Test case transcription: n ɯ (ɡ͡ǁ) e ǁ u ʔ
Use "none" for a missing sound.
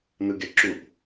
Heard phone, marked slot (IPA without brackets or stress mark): ɡ